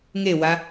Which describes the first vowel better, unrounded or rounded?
unrounded